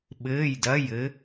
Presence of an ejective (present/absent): absent